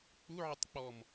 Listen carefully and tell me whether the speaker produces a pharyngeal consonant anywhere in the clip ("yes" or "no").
yes